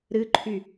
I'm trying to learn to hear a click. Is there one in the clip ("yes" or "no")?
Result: yes